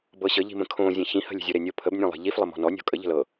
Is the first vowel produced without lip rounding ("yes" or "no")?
yes